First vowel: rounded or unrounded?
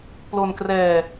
rounded